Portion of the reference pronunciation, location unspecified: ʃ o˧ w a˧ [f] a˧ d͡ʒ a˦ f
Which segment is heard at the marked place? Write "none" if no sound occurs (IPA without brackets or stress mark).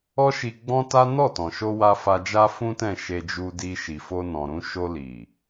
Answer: f